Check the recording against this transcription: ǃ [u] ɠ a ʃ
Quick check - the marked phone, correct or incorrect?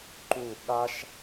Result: correct